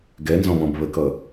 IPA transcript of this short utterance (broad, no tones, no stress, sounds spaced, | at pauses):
ɡ ɛ n z ɔ̃ β ɔ̃ b β ə k ʌ